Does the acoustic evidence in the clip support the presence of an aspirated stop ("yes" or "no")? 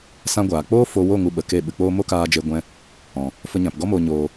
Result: no